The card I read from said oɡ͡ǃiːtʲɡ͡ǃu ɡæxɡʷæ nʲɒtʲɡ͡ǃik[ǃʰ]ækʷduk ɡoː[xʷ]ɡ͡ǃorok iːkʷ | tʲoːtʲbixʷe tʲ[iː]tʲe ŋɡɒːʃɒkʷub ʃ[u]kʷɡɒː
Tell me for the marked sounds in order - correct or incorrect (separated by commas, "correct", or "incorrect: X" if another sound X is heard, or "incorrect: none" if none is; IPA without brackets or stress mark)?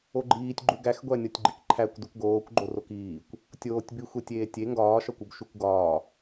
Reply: correct, incorrect: kʷ, incorrect: eː, correct